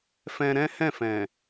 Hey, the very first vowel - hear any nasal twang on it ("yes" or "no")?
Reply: yes